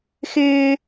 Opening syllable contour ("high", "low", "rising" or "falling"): high